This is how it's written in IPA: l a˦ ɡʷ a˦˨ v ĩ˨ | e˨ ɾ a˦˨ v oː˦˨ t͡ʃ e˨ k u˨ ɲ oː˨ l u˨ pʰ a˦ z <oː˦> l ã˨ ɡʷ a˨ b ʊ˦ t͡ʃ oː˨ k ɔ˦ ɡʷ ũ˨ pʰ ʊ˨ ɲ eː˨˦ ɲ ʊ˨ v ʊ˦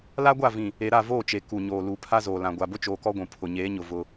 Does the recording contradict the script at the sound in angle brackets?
yes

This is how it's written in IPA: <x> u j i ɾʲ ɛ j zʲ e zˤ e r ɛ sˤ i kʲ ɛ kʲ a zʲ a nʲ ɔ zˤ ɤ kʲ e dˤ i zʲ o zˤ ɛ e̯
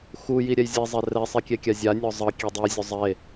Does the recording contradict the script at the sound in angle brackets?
no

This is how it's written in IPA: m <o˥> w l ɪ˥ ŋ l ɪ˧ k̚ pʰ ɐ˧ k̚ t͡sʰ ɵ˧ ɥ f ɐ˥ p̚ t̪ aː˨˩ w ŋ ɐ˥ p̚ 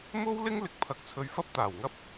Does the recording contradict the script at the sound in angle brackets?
no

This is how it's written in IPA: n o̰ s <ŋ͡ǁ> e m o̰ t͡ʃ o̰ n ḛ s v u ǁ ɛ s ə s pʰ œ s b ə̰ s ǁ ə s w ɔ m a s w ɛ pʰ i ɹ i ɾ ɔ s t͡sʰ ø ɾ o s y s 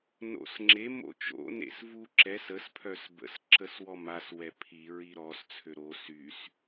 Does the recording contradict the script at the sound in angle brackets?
no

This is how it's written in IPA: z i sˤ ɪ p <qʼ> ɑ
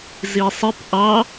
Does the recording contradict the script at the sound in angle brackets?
yes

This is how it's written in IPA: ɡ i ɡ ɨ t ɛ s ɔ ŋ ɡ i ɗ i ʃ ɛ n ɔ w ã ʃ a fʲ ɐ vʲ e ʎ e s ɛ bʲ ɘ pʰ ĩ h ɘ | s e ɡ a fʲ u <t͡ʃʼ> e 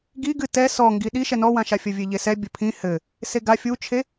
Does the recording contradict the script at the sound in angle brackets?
yes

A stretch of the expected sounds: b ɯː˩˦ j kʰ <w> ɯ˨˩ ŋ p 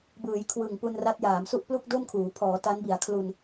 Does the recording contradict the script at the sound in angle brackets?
no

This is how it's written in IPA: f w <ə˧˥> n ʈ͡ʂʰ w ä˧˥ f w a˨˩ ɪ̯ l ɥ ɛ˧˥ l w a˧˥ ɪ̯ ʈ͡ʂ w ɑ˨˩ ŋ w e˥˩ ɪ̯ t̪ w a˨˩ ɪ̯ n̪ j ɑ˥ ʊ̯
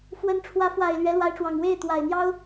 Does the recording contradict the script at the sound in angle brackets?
no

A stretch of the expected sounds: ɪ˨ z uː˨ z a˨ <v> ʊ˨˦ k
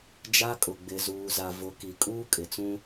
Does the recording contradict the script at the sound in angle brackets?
no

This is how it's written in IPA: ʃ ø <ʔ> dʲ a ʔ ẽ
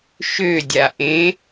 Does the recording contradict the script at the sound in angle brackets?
yes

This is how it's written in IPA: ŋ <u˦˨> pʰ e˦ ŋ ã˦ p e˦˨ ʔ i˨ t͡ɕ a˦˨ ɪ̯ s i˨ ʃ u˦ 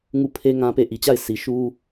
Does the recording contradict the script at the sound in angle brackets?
no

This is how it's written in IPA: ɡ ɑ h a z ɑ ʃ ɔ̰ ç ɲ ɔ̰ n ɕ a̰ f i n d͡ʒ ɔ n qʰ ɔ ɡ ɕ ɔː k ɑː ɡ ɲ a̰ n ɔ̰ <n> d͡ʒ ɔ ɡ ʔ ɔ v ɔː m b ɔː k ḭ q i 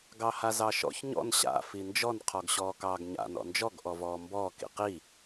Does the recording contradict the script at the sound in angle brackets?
no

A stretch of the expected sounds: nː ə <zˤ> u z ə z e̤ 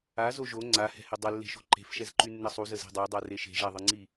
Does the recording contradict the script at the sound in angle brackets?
yes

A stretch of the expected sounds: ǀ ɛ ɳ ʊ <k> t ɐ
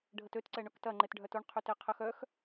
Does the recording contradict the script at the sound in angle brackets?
no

